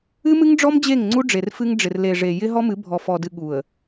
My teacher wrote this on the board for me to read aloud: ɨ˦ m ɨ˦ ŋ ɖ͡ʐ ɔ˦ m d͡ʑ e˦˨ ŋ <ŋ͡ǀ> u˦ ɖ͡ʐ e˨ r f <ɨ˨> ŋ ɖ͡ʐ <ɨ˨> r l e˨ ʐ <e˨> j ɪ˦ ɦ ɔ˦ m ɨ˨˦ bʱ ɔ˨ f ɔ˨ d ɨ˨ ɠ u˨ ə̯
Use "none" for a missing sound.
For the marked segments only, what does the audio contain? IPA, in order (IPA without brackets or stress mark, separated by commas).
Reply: ŋ͡ǀ, ɨ˦, ɪ˨, e˨